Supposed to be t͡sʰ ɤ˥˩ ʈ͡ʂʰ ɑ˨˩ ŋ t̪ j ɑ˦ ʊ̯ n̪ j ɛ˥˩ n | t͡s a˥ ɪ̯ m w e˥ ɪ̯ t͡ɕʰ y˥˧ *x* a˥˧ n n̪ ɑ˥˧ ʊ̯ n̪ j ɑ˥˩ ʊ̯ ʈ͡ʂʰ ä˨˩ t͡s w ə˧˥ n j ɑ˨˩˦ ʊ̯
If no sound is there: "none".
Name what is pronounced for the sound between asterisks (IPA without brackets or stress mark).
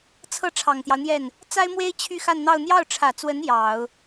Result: x